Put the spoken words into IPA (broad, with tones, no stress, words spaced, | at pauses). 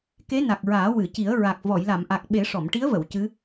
ke˧˥na˨˩k̚ɹaː˨˩˦ wɨ˨˩˨ci˨˩˦ə̯ ɹa˨˩k̚ vɔ˨˩˨jla˨˩˨mʔa˨˩k̚ɓe˨˩˦ ʂɔ˨˩˨mʈi˧˥ə̯və˨˩˨w cɨ˧˥